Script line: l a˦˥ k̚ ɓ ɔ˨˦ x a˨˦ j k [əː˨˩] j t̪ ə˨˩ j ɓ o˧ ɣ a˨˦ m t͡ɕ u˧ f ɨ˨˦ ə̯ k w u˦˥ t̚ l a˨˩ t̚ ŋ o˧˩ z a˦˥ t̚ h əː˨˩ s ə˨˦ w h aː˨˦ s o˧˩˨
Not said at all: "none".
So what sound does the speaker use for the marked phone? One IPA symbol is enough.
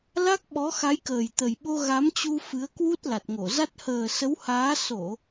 əː˨˩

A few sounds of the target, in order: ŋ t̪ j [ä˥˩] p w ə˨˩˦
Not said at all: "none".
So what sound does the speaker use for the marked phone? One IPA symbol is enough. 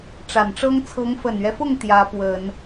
ä˧˥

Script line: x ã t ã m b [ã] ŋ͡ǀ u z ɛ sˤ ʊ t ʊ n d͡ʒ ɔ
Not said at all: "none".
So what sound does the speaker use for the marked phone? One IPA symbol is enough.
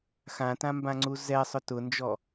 ã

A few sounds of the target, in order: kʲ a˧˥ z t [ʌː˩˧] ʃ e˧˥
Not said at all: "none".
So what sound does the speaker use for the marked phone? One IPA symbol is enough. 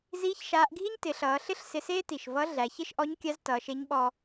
ʌː˩˧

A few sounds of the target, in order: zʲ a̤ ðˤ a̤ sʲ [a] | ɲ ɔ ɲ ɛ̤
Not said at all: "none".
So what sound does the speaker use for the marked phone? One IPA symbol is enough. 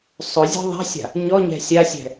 a̤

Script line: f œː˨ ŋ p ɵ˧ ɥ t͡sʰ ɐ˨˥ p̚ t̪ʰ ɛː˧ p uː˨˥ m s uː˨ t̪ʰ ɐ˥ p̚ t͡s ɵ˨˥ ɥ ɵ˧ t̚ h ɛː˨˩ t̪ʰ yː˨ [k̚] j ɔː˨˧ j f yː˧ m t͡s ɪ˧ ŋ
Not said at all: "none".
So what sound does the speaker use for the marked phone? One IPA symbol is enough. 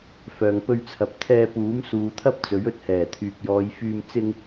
k̚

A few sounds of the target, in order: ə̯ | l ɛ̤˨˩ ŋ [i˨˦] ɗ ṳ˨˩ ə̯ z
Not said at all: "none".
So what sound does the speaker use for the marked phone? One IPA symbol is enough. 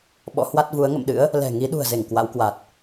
i˨˦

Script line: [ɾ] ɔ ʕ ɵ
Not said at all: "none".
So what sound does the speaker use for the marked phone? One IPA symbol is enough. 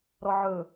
ɾ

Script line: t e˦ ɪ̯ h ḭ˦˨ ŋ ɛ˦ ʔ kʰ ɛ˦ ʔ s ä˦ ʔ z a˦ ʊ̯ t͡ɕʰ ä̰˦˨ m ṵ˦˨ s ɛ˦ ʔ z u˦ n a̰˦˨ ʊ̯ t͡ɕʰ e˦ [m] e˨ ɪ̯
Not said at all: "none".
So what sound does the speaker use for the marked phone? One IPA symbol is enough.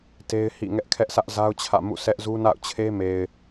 m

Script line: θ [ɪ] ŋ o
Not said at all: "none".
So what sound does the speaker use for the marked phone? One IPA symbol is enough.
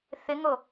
ɪ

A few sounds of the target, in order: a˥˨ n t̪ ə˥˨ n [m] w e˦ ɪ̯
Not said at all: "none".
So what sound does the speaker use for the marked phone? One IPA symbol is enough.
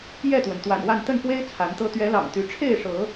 f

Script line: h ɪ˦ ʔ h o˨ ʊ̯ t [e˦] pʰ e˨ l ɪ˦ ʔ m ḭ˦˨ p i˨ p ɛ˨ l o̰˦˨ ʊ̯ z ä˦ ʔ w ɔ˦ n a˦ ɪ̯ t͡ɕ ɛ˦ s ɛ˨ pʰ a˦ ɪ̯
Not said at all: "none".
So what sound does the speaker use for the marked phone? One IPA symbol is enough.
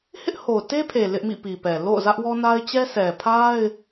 e˦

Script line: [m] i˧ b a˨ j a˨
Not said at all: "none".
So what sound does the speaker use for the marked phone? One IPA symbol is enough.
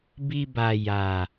b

